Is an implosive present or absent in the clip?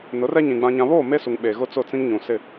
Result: present